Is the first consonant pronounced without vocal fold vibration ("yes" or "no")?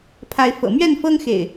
yes